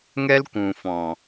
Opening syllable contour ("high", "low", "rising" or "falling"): high